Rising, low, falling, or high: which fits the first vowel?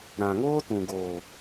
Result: low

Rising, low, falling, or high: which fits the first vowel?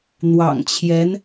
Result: low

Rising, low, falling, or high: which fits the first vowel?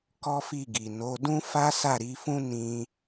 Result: high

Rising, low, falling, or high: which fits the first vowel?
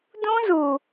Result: high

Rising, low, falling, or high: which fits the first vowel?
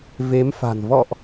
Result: rising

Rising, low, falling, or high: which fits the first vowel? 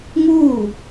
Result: falling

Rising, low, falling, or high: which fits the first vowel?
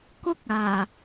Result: high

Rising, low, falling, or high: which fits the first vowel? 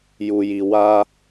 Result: low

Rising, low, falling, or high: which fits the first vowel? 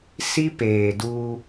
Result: high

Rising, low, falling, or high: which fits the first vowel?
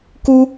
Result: high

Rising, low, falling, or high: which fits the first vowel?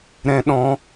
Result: high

